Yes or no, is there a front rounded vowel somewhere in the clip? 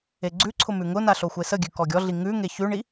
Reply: no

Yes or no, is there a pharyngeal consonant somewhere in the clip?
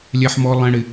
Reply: yes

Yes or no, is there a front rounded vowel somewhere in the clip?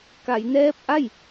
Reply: no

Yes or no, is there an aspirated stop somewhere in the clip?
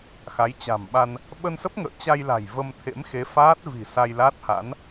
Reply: yes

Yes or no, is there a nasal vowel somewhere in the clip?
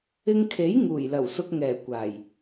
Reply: no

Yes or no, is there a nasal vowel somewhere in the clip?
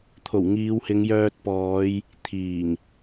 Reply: no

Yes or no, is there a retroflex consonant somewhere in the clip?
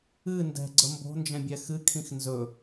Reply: no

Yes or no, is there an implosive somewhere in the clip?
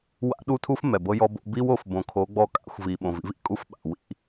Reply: yes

